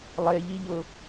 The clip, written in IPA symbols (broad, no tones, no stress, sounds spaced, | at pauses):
lˠ e ʎ i ʎ ʊ